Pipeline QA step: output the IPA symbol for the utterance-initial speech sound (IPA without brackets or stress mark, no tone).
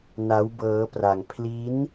n